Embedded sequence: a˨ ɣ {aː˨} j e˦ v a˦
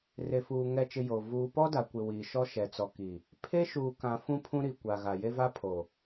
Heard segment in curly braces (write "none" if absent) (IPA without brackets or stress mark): a˨